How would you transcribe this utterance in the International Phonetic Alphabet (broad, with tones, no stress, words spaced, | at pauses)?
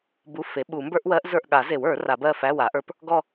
bu˧˥˧ fe˩˥ɓu˨˩˦ mbə˞˥ʔwɜ˧˥ʔ zə˞˦˨ʔɠa˨˩˦ze˨˩˦w ə˞˨˩˦ra˨˩˦bɜ˦˨fæ˧˥˧ wa˩˥ʔə˞˧˥p | ɡɔ˦˨